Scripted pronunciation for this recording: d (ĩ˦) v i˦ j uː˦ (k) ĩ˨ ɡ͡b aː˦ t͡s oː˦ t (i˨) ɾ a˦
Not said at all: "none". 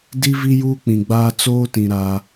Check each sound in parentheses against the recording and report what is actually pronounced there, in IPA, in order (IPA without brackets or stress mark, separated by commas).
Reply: i˦, k͡p, ĩ˨